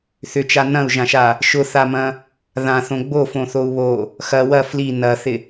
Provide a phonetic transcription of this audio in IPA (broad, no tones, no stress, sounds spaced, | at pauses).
θ ʏ t͡ʃ a n ɐ̃ u̯ ʒ ã ʃ a | ʃ ʊ θ a m ɐ̃ | ð ã θ õ ɡ͡b o f õ θ o u̯ β o | x ɐ w ɐ f l i n ɐ θ ɪ